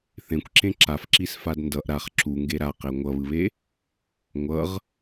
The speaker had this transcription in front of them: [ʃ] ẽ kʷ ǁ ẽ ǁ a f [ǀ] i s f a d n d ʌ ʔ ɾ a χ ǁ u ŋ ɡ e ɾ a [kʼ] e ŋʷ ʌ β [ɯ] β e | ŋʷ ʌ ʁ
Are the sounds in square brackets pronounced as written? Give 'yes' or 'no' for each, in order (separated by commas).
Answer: no, no, no, yes